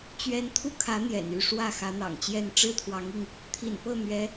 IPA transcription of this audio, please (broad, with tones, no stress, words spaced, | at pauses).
t͡ɕɥɛ˥n t̪ʰu˥˩kʰä˧˥ n̪jɛ̰˨˩n y˥˧ʂwä˥˩ xä˧˥n̪ɑ̰˨˩ŋt͡ɕjɛ˥˩n ʈ͡ʂɻ̩˥t̪ʰwɑ˧˥ŋi˧ŋ | t̪ʰḭ˨˩npɤ˥˩n̪ɥɛ˧˥